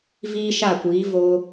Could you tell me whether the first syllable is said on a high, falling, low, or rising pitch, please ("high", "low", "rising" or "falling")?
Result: high